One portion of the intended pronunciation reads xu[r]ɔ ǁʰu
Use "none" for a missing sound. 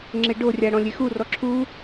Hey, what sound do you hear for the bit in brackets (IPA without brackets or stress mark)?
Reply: r